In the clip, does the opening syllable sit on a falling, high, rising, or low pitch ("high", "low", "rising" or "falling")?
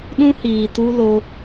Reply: high